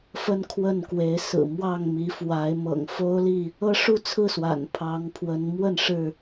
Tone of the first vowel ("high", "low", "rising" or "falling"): high